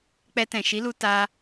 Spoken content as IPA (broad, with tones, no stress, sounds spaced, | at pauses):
k͡p ɛ˧ t ɛ̃˨ ʃ i˨˦ l u˧ t a˧